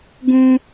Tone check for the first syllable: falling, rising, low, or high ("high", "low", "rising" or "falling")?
high